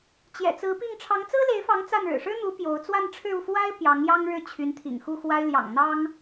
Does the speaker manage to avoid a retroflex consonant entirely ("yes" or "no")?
no